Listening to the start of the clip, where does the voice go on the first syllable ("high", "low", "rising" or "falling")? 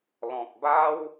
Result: low